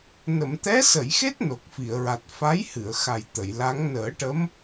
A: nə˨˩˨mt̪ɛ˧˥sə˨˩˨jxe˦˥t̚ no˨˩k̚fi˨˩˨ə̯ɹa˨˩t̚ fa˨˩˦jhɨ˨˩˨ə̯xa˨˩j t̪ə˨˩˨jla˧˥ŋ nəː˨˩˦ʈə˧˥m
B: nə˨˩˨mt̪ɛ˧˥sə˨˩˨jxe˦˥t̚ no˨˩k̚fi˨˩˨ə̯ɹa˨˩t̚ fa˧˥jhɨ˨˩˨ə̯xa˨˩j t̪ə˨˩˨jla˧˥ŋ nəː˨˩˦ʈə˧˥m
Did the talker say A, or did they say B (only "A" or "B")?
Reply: B